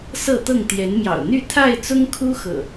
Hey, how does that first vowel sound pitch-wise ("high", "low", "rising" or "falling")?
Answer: falling